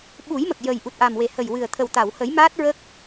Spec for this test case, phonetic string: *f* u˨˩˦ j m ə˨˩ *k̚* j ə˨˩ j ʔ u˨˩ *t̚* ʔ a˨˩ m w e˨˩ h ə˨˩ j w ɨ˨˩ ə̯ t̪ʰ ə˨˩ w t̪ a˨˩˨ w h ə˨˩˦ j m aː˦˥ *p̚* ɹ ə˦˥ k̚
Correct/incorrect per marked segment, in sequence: incorrect, correct, correct, incorrect

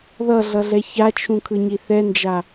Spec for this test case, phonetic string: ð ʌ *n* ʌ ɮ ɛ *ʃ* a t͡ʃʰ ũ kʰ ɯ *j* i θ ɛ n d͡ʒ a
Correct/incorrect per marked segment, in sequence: incorrect, incorrect, incorrect

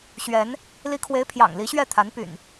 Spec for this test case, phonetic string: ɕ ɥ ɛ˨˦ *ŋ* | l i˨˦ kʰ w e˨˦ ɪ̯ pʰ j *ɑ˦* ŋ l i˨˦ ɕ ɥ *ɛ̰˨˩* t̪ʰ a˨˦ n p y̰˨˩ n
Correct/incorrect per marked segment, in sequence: incorrect, incorrect, incorrect

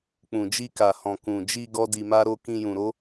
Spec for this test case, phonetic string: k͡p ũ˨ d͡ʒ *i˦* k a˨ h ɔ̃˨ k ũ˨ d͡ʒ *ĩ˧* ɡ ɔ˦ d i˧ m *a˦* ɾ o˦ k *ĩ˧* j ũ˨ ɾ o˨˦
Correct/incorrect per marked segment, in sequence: incorrect, incorrect, correct, correct

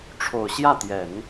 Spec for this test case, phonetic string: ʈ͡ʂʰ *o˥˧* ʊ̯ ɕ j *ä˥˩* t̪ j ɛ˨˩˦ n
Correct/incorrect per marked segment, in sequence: incorrect, correct

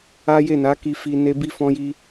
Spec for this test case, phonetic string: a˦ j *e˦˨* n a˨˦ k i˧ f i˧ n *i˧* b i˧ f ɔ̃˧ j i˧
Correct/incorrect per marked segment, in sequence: correct, incorrect

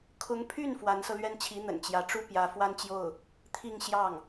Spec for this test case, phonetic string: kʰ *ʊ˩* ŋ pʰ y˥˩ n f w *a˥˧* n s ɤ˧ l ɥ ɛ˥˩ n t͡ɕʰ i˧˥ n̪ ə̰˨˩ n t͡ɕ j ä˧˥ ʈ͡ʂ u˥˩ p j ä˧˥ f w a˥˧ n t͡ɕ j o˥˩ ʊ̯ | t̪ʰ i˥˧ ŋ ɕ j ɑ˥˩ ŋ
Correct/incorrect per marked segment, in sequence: incorrect, incorrect

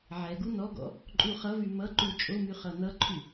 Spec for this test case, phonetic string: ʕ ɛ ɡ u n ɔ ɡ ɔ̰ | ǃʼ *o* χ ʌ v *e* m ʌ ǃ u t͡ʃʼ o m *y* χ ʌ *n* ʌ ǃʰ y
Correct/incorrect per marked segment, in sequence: incorrect, incorrect, correct, correct

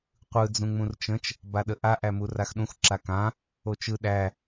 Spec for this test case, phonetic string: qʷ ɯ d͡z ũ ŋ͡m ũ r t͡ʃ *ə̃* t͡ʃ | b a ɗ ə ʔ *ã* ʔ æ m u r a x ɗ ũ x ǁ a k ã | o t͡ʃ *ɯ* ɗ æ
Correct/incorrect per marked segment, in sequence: correct, incorrect, correct

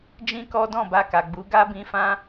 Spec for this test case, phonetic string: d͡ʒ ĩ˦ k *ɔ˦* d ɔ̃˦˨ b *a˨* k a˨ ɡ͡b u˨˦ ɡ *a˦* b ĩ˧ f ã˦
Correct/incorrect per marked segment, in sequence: correct, incorrect, correct

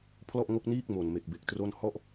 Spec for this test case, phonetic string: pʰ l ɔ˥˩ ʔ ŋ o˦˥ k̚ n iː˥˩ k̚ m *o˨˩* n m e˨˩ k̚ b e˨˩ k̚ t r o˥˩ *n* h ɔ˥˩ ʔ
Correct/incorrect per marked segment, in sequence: correct, correct

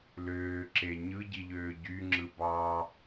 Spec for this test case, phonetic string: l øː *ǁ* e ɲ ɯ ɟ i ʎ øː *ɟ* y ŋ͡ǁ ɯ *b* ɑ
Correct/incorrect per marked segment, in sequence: correct, correct, correct

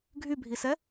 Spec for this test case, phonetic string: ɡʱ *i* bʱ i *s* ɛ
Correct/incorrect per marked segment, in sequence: incorrect, correct

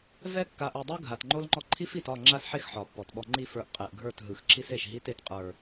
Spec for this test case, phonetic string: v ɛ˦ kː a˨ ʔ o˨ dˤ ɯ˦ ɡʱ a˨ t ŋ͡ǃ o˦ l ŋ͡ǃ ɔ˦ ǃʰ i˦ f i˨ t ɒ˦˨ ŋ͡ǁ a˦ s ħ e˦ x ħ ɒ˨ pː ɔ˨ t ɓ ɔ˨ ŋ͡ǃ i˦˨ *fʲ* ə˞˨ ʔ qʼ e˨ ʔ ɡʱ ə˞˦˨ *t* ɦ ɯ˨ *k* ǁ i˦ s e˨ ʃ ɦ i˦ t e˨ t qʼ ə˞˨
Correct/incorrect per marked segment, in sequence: incorrect, correct, incorrect

